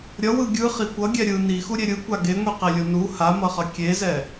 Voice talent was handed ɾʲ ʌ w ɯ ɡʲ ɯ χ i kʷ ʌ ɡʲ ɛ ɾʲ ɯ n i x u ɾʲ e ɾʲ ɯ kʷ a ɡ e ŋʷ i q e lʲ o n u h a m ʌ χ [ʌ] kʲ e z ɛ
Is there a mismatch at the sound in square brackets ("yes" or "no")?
no